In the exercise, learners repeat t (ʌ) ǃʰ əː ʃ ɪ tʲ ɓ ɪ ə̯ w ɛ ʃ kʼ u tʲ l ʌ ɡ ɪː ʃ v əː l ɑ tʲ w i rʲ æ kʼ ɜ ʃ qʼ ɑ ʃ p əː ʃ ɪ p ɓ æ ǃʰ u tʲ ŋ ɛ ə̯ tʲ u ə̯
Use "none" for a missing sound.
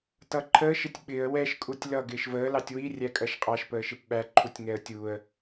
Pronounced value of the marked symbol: ʌ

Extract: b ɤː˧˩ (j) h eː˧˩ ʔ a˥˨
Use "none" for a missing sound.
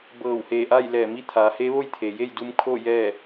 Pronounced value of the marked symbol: w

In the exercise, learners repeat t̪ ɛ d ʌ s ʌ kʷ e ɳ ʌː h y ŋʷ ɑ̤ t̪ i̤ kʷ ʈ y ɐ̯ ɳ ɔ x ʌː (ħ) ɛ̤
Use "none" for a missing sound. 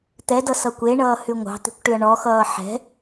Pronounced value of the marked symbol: ħ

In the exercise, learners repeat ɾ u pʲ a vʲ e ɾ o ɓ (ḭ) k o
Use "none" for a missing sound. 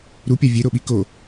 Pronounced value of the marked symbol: i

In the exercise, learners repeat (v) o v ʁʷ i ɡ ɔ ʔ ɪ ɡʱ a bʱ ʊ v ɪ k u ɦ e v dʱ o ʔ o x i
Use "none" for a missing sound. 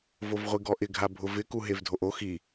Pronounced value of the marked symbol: v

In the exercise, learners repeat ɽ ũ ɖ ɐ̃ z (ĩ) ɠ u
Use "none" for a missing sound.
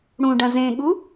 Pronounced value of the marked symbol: ẽ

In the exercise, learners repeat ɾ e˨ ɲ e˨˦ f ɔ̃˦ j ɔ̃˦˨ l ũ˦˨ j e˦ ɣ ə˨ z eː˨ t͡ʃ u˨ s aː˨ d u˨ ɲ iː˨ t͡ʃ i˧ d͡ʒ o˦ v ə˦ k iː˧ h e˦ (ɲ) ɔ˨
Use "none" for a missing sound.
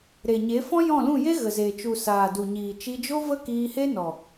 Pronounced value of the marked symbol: n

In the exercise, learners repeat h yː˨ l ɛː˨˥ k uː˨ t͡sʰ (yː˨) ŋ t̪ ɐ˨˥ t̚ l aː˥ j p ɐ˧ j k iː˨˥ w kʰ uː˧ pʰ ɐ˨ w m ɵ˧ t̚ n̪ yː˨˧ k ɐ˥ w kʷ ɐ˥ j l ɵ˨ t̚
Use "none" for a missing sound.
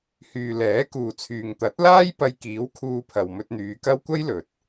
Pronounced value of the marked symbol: yː˨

